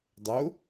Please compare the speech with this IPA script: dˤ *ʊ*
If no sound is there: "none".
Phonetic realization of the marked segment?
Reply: ʊ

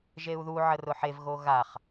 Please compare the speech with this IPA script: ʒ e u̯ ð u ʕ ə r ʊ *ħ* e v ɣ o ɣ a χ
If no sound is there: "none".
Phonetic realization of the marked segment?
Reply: ħ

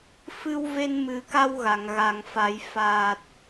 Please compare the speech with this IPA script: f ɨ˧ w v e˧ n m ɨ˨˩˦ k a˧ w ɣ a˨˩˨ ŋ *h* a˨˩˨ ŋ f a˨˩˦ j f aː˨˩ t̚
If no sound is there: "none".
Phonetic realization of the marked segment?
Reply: ɣ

